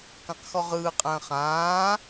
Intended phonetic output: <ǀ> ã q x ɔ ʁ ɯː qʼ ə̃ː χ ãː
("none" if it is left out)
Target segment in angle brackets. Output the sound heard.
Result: k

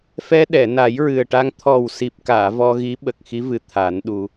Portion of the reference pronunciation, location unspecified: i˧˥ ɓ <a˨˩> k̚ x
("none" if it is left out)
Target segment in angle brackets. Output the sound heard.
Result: ə˨˩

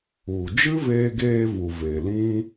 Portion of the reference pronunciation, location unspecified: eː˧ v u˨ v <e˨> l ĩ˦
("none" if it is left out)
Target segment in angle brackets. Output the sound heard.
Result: e˨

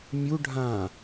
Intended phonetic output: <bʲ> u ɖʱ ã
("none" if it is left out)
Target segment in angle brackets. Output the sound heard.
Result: mʲ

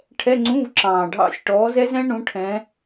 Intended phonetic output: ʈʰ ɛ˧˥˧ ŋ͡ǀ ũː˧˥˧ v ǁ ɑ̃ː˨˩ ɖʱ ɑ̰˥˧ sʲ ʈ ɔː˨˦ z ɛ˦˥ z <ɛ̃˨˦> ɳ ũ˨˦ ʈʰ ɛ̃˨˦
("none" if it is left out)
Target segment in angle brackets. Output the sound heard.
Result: ɛ̃˦˥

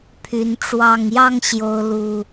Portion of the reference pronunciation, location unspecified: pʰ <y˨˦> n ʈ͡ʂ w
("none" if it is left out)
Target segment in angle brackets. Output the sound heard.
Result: y˨˦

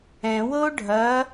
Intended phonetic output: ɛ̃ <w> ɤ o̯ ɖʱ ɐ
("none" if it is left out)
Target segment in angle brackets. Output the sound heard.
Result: w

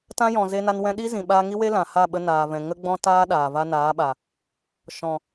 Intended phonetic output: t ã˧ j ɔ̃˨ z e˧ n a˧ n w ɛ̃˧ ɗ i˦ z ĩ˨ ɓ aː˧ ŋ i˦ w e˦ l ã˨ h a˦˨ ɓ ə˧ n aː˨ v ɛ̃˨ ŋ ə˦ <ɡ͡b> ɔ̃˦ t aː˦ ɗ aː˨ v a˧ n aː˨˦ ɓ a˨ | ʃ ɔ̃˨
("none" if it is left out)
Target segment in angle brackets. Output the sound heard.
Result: ɡ͡b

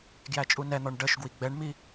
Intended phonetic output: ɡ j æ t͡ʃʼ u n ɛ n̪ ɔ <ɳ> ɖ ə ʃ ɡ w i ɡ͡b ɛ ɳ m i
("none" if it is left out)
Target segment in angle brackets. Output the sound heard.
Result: ɳ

